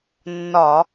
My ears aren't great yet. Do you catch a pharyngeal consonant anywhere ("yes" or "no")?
no